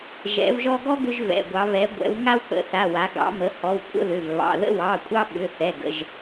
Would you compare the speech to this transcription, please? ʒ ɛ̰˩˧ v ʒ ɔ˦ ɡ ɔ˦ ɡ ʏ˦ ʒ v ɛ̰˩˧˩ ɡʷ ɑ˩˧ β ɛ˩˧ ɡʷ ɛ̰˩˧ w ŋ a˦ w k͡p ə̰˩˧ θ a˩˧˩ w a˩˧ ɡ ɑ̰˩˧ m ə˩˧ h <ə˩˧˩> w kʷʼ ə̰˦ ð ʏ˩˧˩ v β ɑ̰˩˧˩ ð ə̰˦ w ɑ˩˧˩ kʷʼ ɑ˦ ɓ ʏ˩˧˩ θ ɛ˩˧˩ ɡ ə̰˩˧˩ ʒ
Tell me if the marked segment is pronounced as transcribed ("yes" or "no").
no